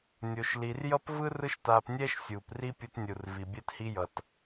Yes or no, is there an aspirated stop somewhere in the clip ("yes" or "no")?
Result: no